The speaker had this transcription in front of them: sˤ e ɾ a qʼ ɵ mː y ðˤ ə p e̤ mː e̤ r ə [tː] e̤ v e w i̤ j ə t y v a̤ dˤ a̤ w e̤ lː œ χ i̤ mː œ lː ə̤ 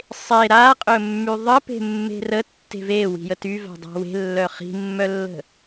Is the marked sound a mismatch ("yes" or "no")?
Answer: no